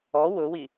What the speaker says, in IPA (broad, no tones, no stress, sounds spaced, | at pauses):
ɔ w ʊ w i